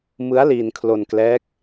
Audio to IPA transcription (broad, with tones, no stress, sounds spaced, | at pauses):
m ɯ˦˥ a̯ l iː˧ n kʰ l o˧ n k l ɛː˦˥ k̚